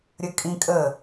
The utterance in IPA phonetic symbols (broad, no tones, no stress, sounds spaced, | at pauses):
ɾʲ ə kʼ ĩ kʼ ə